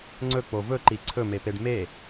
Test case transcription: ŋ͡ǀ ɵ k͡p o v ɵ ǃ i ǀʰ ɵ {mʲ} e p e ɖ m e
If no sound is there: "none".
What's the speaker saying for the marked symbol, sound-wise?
m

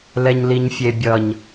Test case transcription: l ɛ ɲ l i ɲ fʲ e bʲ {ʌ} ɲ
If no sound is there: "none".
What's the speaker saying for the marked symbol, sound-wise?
ʌ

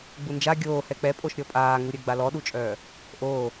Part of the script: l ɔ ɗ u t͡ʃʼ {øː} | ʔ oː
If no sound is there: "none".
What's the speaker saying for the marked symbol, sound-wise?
œː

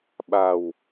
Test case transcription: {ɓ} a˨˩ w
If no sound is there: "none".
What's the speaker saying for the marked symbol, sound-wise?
ɓ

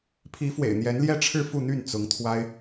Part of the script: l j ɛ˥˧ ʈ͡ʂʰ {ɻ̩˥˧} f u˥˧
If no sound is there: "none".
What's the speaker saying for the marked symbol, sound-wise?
ɻ̩˥˧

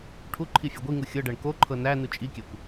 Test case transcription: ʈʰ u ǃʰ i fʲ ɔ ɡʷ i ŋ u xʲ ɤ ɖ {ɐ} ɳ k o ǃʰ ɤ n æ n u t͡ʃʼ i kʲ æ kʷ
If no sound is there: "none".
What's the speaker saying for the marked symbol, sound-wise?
æ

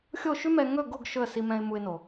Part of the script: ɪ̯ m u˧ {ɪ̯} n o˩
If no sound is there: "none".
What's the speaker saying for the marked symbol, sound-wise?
ɪ̯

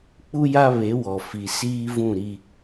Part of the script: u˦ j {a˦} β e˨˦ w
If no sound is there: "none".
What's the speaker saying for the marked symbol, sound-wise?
a˦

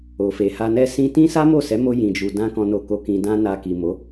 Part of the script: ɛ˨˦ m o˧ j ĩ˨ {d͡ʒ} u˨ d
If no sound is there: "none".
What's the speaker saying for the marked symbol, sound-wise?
d͡ʒ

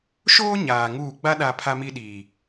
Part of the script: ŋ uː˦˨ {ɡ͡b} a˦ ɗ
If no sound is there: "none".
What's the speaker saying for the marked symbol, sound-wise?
ɡ͡b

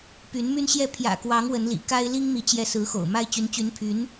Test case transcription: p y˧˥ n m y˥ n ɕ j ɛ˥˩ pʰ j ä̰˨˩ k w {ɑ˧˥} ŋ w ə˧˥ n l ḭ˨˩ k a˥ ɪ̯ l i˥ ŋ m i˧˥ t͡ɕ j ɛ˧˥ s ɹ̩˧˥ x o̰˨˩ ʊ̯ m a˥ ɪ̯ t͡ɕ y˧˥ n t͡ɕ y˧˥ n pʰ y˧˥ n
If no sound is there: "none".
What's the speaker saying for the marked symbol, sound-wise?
ɑ˧˥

